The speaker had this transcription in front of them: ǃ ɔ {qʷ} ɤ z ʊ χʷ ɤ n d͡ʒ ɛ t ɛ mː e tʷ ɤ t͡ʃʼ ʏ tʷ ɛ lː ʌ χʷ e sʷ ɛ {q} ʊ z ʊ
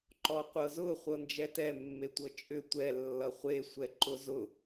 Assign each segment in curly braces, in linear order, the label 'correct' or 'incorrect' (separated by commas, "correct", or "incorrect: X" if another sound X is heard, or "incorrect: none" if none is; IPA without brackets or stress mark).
correct, incorrect: ǃ